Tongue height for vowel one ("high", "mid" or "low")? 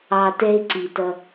low